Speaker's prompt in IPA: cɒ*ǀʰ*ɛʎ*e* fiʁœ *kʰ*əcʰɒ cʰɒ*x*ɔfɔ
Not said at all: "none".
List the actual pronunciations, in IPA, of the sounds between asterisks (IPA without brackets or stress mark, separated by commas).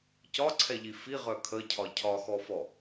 ǀʰ, i, kʰ, x